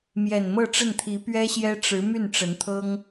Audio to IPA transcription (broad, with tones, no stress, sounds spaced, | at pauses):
m j ɛ˨˩ n m ɤ˥˧ ʈ͡ʂ ə˥˩ n t̪ʰ i˧˥ p ɥ ɛ˥ ɕ j ɛ˥ ʈ͡ʂ ɻ̩˧˥ m y˥˩ n ʈ͡ʂ ə˧˥ n t̪ʰ ɤ˥ ŋ